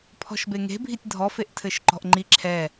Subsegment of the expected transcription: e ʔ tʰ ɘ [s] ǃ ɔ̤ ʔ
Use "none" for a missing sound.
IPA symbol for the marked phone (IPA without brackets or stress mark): ʃ